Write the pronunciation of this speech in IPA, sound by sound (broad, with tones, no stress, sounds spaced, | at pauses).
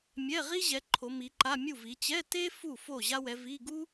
mʲ ɛ˧˥˧ ʁ i˥ ʑ ɛ˨˦ ǃʰ o˨˦ m i˨˦ ǃ a˧˥˧ mʲ u˥˨ v i˨˦ t͡ɕ ɛ˧˥˧ t e˥ f u˥˨ f o˥˨ ʑ a˥ w ɛ˨˦ v i˧˥˧ ɡ u˥